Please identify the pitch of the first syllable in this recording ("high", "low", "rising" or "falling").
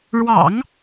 low